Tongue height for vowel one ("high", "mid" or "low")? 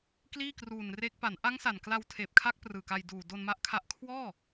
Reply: high